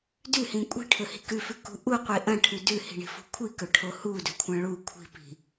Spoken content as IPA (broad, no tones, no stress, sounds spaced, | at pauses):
d ʉ h ĩ kʷʼ i̤ ʈʰ ɵ h i̤ k ʉ f ʉ k ṳ ʔ u qʷ i ʔ ɐ̃ ʈʰ ʉ d ʉ h i̤ ɳ i̤ f ṳ kʷʰ i k ɵ ʈʰ o h u d ɵ kʷʰ ɐ̃ ɭ u kʷʰ i̤ p i̤